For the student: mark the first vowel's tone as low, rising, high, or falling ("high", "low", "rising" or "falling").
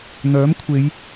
rising